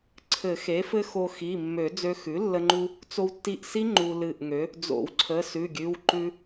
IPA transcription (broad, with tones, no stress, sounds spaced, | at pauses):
ǀʰ ɘ˨˩˦ x e˩˥ f ɘ˦˥ x o˧ x i˩˧˩ mː ø˨˩˦ d͡z ø˧ x ʉ˩˥ lː ə˧ ŋ͡ǃ u˧ | t͡s o˧ w tː i˧˩ ʔ s i˦˥ ŋ͡ǃ u˧ l ɨ˧˩ ʔ ŋ ø˩˥ | d͡z o̰˨˩˦ w ǀʰ ə˩˧˩ s ʉ˩˧˩ ɡʲ ʉ˩˧˩ w ǃ ʉ˧